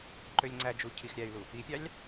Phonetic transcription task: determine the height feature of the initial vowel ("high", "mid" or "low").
mid